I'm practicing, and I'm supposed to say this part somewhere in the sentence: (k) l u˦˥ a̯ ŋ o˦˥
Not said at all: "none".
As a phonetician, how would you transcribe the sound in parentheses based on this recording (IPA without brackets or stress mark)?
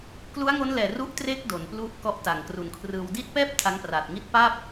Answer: k